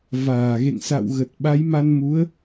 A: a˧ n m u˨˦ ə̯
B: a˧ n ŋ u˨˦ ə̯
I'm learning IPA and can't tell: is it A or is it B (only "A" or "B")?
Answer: A